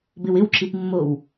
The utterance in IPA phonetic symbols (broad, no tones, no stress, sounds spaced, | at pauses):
b ɪ w ɪ w ǁ i p mː o w